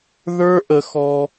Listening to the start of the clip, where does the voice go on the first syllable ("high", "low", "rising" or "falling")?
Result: high